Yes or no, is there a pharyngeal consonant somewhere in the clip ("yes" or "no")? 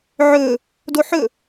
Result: yes